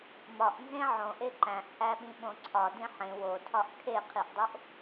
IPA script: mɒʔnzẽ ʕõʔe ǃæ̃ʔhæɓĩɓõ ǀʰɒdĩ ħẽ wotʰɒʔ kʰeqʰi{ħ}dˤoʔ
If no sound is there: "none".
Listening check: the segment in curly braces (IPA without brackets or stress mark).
ʔ